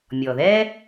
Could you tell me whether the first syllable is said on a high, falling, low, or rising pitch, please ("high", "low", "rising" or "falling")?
low